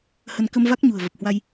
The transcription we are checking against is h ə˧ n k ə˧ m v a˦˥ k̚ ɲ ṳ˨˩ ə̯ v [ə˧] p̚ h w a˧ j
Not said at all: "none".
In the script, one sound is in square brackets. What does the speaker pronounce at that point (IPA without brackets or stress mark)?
ə˨˩